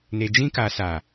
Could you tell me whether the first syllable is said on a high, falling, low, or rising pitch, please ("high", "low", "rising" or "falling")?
low